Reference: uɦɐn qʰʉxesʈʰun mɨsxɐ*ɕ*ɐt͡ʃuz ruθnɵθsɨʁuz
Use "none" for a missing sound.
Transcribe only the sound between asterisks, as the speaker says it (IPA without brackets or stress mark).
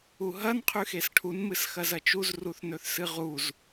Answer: z